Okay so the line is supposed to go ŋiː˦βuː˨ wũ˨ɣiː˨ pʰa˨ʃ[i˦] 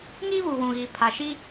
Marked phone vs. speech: correct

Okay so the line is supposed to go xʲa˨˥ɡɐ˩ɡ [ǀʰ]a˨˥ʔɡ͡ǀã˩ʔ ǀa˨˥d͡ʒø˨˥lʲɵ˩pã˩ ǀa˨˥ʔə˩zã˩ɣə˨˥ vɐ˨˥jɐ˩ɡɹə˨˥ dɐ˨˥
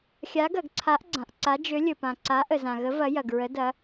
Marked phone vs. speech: correct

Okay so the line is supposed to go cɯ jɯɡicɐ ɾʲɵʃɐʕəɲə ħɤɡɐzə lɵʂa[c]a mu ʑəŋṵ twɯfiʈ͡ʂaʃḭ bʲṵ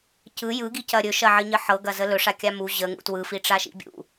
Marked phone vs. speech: incorrect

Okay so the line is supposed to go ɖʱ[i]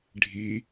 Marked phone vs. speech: correct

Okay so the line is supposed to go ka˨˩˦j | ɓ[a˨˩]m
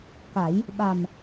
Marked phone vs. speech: correct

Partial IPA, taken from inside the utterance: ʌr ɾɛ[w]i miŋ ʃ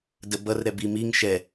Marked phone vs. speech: incorrect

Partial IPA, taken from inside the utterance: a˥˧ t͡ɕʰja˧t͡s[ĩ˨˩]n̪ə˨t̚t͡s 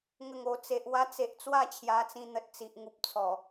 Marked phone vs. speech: incorrect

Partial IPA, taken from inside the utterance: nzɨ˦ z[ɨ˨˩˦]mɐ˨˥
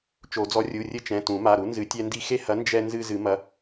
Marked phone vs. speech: correct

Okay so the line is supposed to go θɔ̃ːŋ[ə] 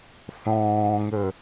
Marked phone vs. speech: correct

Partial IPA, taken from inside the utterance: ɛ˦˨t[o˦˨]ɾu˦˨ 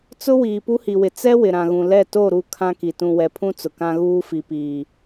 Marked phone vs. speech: correct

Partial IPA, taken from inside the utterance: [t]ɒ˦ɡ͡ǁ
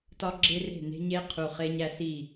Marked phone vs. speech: correct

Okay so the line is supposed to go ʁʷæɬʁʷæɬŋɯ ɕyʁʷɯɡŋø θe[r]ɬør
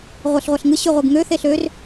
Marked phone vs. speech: incorrect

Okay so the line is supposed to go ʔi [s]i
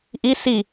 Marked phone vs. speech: correct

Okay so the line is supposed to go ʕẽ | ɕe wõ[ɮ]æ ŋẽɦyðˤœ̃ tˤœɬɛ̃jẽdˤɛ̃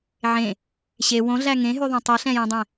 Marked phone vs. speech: correct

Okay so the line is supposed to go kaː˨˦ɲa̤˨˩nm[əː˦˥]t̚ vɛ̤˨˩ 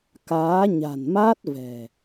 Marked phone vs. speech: incorrect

